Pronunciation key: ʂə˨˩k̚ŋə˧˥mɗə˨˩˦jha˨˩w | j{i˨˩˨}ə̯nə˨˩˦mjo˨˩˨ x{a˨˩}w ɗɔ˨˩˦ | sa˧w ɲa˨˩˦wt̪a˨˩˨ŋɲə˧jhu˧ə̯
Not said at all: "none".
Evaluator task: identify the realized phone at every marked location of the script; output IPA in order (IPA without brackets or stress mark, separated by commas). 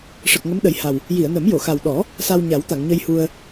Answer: i˨˩˨, a˨˩